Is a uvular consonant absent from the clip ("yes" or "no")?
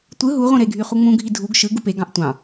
no